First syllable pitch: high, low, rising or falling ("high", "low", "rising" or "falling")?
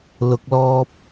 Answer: low